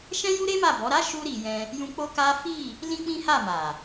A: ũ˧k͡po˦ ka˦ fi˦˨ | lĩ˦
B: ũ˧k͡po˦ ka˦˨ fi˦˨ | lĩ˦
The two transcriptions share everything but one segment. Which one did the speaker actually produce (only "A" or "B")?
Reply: A